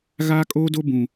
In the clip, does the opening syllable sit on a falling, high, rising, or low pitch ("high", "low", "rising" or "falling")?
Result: high